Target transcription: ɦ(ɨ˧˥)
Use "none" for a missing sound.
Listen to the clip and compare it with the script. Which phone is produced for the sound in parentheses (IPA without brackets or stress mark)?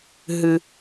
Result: ɨ˨